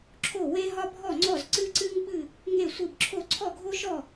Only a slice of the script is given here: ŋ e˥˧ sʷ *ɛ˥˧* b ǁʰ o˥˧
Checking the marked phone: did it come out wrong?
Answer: yes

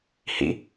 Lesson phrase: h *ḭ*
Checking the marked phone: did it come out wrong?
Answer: no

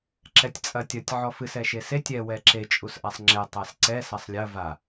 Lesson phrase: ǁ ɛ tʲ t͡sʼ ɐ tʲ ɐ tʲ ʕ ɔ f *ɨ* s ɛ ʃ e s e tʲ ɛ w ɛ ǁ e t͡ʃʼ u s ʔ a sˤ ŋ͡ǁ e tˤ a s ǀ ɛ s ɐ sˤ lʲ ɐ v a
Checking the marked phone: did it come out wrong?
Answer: no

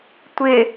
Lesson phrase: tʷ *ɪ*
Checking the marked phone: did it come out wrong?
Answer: no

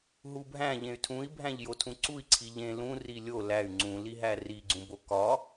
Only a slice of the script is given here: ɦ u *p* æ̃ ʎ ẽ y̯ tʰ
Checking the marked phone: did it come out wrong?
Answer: yes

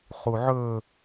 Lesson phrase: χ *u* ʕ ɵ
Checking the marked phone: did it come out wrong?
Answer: no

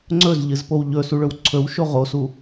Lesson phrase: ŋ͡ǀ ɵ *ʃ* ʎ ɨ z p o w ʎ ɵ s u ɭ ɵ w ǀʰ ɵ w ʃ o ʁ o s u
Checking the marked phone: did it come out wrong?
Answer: yes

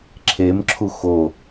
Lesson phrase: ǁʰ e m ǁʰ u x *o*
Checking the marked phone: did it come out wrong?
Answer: no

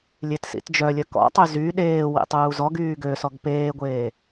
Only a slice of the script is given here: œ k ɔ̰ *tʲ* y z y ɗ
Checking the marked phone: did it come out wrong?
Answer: yes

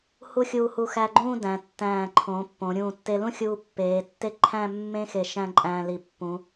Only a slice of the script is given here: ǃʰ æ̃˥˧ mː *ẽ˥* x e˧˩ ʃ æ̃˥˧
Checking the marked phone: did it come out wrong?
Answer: no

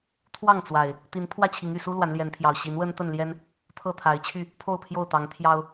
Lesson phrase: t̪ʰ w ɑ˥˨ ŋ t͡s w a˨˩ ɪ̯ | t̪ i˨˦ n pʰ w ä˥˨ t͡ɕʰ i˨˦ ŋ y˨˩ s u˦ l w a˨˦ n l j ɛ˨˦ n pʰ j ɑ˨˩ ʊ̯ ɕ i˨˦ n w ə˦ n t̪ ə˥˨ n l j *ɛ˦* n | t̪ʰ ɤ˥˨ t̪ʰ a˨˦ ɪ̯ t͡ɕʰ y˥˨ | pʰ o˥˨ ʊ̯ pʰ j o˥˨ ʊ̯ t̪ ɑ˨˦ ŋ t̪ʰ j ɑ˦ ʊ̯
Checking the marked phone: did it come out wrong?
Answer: no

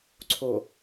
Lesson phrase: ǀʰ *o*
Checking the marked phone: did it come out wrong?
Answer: no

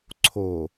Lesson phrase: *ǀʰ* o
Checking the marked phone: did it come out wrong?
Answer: no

